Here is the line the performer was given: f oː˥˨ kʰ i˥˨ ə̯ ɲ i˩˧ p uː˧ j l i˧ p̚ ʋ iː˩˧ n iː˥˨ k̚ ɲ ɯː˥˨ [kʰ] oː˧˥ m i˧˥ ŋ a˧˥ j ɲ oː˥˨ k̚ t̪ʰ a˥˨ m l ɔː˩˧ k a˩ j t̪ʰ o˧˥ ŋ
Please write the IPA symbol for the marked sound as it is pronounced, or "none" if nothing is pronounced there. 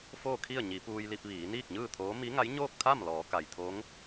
t̪ʰ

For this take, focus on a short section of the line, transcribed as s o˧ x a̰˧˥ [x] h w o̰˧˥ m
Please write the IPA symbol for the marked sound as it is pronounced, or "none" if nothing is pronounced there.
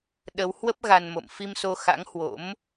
ŋ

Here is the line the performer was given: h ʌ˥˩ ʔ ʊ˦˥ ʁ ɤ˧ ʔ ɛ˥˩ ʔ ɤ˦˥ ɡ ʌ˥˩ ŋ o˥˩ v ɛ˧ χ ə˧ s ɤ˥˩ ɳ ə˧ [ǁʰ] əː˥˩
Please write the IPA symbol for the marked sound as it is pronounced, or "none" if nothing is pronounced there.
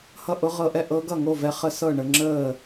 ŋ͡ǁ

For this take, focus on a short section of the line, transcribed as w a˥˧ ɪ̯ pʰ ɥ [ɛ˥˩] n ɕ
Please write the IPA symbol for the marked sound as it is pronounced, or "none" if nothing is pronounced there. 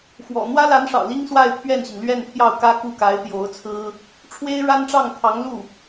ɛ˥˩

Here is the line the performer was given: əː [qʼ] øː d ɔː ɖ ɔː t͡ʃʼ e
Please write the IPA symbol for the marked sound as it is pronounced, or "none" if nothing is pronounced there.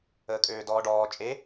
kʼ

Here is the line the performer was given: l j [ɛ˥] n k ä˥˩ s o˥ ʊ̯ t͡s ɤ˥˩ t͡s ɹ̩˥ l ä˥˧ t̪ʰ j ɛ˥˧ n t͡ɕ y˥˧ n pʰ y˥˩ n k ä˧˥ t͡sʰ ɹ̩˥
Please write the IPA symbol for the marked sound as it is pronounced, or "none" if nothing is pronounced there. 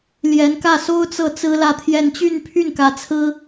ɛ˧˥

